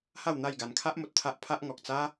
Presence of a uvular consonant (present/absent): absent